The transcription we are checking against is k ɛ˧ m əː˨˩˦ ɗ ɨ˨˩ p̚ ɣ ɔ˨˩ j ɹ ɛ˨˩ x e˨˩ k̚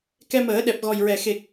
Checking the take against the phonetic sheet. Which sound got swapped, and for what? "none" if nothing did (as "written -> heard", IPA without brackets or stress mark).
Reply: ɨ˨˩ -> ɛ˨˩